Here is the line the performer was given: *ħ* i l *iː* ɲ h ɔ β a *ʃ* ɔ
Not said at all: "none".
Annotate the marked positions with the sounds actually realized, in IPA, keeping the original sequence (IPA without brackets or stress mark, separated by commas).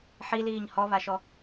ħ, iː, ʃ